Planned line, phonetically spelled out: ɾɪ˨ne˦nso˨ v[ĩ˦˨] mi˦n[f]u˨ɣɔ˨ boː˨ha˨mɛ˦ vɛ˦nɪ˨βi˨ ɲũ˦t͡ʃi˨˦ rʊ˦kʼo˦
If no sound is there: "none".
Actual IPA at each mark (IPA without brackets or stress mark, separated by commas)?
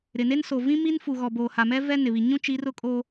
ĩ˦, f